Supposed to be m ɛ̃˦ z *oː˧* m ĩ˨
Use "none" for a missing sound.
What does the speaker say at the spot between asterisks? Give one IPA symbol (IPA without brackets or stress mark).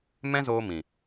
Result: oː˧